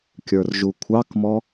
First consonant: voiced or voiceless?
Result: voiceless